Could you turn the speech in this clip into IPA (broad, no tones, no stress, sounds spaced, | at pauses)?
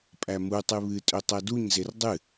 pʼ æ m u tˤ ɨ β ɨ tʼ ø tˤ ɜ d u ɲ z e r dˤ ɨ